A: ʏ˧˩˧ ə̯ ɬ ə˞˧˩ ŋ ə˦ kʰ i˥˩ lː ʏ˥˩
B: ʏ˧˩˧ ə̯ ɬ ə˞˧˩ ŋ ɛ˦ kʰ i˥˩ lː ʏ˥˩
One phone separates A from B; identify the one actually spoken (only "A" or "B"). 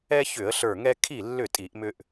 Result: B